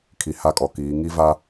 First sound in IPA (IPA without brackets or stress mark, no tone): kʰ